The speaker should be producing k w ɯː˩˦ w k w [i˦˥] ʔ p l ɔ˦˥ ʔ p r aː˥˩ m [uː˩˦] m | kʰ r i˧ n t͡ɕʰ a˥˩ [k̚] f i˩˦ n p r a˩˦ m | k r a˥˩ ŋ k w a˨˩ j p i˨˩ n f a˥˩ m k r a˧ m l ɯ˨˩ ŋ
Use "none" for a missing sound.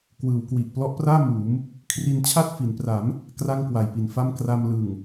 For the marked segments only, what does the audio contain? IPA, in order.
i˨˩, uː˩˦, t̚

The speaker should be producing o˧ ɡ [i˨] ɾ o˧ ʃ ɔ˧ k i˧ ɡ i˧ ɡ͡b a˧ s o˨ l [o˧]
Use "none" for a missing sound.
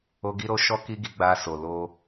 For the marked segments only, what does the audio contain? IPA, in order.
i˧, o˧

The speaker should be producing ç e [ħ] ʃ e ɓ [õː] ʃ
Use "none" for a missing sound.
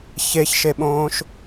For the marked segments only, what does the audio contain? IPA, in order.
ç, õː

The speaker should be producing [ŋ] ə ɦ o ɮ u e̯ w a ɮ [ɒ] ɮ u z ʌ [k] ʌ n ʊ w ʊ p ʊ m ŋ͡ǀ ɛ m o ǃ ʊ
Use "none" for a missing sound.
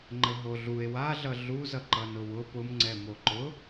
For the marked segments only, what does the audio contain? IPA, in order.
ŋ͡ǃ, ʌ, ǃ

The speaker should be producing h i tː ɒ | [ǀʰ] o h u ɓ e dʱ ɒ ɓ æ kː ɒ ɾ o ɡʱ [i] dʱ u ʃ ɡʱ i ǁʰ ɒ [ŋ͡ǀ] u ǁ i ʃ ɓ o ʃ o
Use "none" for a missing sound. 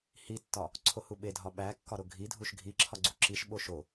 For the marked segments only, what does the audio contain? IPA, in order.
ǀʰ, i, ɡ͡ǀ

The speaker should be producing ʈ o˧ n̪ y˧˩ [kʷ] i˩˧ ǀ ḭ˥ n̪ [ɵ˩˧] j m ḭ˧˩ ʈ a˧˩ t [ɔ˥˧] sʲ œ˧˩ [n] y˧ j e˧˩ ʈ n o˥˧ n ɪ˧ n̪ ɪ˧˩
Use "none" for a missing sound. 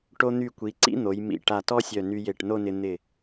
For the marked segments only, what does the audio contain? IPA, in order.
kʷ, o˩˧, ɔ˥, n

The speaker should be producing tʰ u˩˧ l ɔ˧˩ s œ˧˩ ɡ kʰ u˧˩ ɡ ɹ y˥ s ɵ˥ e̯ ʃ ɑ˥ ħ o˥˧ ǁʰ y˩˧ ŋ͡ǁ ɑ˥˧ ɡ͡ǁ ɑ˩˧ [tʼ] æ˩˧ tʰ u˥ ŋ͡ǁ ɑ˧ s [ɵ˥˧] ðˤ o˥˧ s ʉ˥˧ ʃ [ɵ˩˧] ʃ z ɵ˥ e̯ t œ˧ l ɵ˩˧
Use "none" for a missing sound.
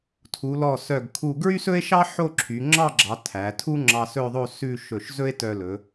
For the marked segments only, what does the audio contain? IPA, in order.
tʰ, ɵ˥˧, ɵ˧˩

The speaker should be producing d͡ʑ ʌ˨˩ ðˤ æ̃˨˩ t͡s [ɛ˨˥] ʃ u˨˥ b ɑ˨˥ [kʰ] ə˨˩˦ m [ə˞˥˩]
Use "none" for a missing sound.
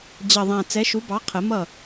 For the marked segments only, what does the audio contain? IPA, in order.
ɛ˨˥, qʰ, ʌ˥˩

